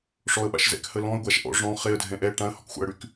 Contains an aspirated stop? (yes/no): no